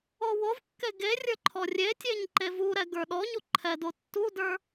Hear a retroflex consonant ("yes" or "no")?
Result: no